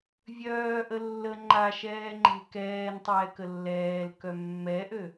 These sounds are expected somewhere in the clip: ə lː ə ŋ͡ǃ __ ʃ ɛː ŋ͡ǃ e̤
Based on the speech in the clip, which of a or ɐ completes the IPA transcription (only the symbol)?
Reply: a